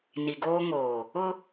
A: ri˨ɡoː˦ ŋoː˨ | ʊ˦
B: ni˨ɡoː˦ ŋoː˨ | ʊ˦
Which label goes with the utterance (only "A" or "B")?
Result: B